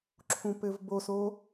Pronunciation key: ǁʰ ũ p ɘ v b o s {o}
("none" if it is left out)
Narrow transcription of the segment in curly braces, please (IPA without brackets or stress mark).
o